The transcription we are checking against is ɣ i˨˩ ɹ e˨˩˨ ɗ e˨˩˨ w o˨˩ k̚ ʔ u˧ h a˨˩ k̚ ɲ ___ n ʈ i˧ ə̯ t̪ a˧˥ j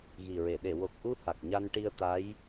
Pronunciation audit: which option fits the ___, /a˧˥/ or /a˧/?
a˧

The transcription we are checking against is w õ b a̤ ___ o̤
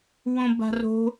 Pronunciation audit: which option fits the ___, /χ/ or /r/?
r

